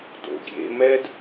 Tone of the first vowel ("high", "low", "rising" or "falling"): low